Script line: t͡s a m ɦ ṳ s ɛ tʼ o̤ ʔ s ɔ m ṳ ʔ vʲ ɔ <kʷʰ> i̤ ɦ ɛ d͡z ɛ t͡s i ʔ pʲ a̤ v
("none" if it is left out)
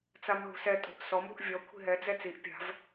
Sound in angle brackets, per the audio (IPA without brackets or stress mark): kʷʰ